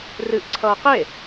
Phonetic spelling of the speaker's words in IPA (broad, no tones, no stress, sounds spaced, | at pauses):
r ɨ ʔ ǀʰ ʌː q e